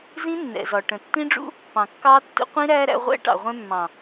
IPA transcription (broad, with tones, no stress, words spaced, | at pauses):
zĩ˦nːɛ̰˨zɒ˨ ʈə̃˨tːĩ˦ɖ͡ʐṵ˦ | pɑ̃˨kːɑː˦tːṵ˦ qʷĩ˦ɾæː˦ɾæ̰˧ ʁʷɛ̰˦ ʈɑ̰˨ʁʷɛ̃˧mːɑ̃˨